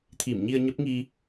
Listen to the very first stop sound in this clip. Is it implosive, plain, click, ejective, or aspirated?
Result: aspirated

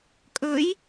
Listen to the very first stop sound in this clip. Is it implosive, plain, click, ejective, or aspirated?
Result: ejective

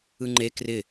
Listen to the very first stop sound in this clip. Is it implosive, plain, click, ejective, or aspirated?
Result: click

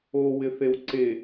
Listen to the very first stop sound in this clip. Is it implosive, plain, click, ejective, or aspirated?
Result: click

